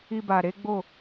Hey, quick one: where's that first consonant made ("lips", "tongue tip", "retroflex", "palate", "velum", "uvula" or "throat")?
lips